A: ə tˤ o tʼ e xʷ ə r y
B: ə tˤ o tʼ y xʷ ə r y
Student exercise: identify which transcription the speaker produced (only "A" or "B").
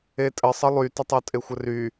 A